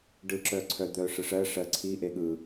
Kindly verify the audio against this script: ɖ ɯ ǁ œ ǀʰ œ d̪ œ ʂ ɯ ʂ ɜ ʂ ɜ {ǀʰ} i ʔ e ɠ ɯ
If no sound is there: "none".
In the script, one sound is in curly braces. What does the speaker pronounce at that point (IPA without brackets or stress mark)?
ǀʰ